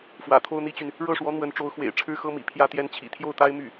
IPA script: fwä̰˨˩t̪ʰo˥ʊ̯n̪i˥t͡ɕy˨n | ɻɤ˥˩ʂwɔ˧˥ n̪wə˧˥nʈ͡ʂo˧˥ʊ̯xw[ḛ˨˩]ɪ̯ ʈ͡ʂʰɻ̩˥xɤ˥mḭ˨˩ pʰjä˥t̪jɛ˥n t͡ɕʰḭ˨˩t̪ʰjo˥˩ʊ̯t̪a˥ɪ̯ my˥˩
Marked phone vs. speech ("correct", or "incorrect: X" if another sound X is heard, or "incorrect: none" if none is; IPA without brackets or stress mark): correct